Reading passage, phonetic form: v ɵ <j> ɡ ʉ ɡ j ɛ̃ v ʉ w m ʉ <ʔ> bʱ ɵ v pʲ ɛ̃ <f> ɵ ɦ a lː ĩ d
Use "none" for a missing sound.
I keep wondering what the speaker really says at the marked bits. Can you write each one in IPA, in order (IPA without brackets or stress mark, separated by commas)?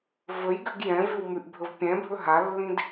j, ʔ, bʱ